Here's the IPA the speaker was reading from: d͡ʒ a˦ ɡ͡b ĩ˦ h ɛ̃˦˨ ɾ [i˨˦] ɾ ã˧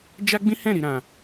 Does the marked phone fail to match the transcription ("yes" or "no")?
no